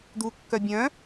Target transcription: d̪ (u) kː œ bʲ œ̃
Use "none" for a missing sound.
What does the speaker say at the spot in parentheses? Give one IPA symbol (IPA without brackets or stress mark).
u